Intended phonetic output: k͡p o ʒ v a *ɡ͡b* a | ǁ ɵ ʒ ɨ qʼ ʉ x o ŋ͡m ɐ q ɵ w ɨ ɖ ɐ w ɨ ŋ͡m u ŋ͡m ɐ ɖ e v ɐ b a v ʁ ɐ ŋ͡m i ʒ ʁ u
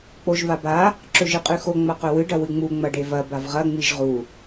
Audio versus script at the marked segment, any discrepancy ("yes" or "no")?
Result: yes